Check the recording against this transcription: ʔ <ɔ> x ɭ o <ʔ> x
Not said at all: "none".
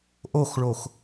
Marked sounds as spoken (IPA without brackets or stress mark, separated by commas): o, none